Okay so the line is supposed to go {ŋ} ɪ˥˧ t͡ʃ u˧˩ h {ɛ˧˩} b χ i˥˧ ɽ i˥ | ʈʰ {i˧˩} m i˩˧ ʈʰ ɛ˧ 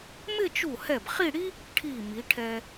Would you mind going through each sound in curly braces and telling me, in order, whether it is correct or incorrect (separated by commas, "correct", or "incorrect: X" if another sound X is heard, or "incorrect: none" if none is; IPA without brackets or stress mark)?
incorrect: m, correct, correct